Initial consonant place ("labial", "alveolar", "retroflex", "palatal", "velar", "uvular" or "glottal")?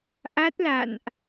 glottal